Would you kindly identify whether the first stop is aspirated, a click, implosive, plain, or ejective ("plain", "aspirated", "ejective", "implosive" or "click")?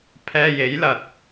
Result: aspirated